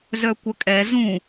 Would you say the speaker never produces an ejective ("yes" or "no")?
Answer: no